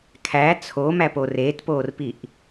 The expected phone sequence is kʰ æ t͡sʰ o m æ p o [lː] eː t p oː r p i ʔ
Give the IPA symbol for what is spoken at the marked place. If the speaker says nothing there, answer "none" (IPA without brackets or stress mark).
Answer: r